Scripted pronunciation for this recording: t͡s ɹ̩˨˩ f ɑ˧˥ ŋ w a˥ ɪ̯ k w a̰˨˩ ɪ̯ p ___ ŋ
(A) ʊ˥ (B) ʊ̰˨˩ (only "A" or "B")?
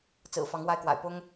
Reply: A